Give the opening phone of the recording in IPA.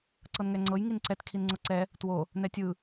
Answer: ǀ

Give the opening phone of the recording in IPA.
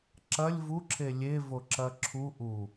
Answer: ǁ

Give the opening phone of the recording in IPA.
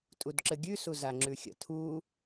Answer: tʼ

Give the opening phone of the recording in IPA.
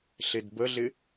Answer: ɬ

